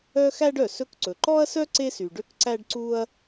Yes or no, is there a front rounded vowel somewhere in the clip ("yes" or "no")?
yes